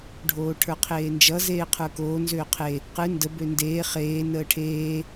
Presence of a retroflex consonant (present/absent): present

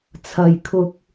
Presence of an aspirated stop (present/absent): present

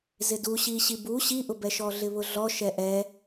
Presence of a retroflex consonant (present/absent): absent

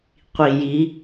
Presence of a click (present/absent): absent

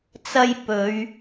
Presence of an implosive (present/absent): absent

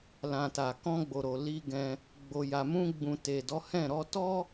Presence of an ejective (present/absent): absent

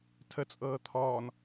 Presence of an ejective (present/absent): present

